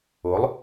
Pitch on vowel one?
rising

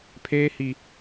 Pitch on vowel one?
high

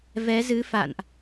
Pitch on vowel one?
rising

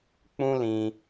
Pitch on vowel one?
high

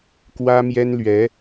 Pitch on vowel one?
high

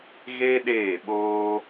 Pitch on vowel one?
high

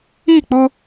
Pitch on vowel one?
falling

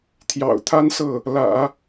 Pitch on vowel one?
low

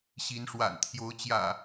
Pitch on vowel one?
rising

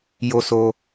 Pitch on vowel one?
high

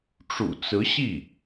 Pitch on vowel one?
low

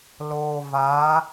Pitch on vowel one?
low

